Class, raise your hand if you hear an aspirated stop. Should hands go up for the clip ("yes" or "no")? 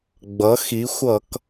no